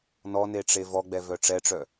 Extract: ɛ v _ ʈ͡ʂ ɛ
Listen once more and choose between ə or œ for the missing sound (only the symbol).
œ